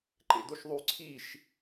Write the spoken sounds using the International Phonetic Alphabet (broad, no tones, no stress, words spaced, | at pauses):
ǃḛdoʃðˤy ǀʰiʃ